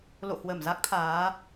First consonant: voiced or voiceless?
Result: voiced